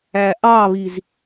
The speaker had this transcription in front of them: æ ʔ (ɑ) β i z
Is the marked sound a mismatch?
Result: no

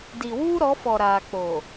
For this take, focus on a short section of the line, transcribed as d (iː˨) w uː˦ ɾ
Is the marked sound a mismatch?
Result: yes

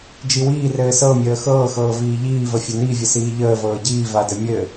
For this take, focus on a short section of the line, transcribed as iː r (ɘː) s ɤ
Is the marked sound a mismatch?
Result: no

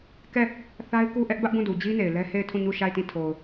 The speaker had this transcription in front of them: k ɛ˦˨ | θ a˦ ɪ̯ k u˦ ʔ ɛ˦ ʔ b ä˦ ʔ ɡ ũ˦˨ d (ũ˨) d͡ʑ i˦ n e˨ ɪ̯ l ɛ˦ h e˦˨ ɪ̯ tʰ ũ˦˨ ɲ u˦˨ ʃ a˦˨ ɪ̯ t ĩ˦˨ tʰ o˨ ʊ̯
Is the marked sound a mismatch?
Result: yes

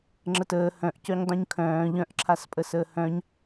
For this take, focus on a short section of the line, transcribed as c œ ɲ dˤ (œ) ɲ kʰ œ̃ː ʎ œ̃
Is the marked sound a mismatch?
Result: yes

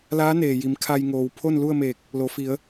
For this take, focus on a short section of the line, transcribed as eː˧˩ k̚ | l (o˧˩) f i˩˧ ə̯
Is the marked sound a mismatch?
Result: yes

